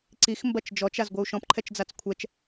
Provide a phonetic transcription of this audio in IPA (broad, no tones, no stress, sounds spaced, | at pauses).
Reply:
ǀ i x m b ɐ t͡ʃ d͡ʒ ɔ t͡ʃ a z ɡʷ ɨ u̯ ʃ ɔ̃ p ǃʰ ɛ t͡ʃ d͡z a t͡s kʷʰ ɛ t͡ʃ